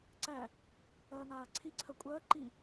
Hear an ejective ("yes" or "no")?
yes